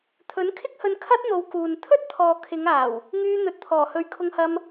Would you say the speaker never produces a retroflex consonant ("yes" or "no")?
yes